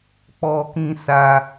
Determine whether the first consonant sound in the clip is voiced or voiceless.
voiceless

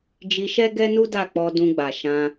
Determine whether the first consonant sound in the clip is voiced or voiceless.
voiced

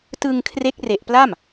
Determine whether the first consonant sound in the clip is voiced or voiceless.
voiceless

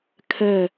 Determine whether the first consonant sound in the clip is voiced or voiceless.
voiceless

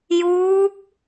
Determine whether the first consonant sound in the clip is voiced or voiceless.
voiced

